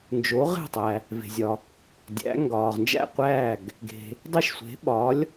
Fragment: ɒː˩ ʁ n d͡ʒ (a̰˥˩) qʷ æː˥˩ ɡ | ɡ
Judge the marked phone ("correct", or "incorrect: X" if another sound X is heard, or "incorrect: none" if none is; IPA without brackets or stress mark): incorrect: æ̰˥˩